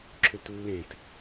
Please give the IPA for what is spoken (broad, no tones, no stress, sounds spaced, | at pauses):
ǁʰ ʏ t lː ẽ t